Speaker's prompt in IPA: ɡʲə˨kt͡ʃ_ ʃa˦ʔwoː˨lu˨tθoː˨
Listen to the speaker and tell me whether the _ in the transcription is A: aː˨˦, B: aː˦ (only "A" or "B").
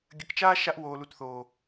B